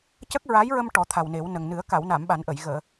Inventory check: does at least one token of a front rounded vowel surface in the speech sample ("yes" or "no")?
no